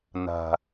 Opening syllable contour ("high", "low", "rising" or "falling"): low